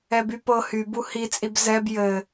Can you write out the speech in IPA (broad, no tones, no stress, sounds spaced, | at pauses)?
ɛ b y p ɤ h y b u h i t͡sʼ i b z ɛ b j ɘ